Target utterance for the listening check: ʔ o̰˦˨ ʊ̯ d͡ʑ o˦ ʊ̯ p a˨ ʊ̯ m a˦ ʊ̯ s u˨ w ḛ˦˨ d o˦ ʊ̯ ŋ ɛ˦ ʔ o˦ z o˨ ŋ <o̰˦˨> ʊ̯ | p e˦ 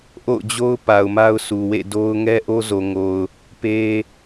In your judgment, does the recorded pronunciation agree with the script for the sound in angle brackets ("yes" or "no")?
no